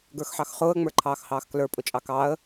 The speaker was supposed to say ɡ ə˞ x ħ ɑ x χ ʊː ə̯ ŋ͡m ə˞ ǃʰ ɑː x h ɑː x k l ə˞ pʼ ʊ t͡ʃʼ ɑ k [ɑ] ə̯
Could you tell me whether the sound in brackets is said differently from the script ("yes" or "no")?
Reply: no